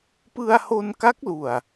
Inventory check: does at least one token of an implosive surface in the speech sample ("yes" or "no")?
no